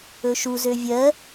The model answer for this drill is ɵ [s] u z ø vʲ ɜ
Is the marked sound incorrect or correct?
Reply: incorrect